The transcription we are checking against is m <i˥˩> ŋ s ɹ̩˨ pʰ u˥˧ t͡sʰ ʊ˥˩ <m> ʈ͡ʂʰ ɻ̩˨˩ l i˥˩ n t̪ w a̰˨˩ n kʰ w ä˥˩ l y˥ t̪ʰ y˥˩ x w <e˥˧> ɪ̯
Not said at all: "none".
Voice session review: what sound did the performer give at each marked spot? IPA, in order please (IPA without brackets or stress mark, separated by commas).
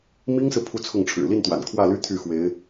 i˥, ŋ, e˧˥